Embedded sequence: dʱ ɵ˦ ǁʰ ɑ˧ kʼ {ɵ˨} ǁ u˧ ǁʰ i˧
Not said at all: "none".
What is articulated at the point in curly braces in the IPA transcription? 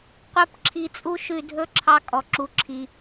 ɔ˨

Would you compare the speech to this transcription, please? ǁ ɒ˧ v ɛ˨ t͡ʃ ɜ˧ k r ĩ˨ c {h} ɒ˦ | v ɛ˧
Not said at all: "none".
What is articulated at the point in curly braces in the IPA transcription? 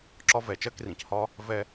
h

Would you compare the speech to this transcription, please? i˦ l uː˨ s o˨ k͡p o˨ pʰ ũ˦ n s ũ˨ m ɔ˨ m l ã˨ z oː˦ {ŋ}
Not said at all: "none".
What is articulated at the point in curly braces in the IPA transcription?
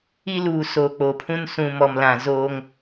ŋ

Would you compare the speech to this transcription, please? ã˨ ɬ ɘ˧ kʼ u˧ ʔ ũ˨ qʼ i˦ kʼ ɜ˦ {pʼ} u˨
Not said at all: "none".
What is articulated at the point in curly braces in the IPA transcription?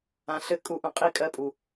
pʼ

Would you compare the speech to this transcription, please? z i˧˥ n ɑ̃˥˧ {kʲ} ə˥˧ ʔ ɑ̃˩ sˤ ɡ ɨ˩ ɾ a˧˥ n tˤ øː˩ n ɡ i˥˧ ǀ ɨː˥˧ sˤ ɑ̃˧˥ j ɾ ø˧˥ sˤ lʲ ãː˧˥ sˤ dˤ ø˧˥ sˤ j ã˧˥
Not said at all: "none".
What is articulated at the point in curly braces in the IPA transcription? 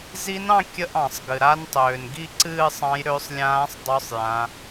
kʲ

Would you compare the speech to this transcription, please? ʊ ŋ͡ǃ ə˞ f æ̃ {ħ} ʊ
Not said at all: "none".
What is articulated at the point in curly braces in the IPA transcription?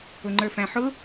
ħ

